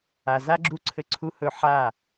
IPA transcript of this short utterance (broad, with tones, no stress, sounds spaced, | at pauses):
a˨ z a˦ ɡ͡ǁ u˦ ǀʰ ɘ˦ ǀʰ u˦ h ɵ˦˨ ħ a˦˨